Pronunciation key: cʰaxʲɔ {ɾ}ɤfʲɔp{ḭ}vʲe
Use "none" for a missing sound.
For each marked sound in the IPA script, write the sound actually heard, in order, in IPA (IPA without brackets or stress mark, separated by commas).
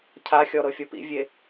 ɾ, ḭ